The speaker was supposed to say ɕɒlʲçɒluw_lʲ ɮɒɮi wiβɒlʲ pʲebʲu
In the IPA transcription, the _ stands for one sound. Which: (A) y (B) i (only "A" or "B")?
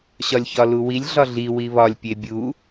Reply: B